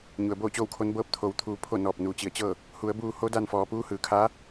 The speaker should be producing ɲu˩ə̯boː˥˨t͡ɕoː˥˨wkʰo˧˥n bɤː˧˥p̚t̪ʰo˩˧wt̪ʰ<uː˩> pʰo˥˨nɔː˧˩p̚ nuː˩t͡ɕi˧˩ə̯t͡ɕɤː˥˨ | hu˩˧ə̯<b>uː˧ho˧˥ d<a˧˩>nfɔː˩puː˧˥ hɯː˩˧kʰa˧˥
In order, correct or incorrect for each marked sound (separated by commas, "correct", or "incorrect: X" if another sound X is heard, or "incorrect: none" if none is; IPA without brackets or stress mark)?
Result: incorrect: uː˩˧, correct, incorrect: a˧